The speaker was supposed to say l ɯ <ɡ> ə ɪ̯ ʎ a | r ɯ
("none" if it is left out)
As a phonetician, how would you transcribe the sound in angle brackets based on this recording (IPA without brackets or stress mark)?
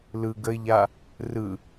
ɡ